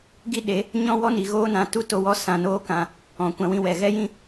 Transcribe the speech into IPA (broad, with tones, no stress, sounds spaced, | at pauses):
ɡ i˦ ɗ e˨˦ | ɲ ɔ̃˦ w ɔ˦ n i˨ ɣ oː˦ n ã˨˦ t u˦ t o˧ w ɔ˦ s ã˧ n oː˦ k ã˧ | ɔ̃˨ kʷ ã˧ w ĩ˧ w ɛ˨ ɣ ɛ˦ j ĩ˦